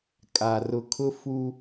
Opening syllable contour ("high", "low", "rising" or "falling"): low